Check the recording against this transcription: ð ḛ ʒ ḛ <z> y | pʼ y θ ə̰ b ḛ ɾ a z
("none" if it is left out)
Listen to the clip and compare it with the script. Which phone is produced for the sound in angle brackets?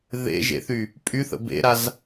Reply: θ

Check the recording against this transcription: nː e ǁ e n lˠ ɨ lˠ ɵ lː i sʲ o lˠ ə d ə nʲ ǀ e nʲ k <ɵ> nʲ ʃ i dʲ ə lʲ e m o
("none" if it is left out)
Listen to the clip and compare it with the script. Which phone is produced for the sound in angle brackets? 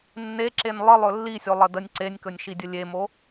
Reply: ɵ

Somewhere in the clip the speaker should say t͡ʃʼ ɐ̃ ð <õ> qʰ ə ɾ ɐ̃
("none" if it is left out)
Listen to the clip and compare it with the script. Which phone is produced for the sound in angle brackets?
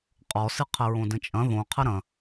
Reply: õ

